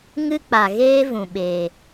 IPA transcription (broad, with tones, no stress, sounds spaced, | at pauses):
ŋ ɨ˦ k͡p a˨ ɣ eː˦ v ũ˨ ɓ eː˨